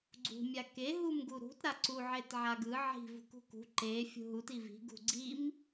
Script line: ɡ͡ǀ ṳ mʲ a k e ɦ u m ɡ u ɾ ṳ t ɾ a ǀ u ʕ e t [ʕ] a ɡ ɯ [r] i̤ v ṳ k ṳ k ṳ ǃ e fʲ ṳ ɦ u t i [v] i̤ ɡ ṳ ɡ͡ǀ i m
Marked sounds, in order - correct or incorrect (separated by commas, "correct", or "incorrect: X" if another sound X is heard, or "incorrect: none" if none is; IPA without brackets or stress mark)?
correct, incorrect: ʕ, correct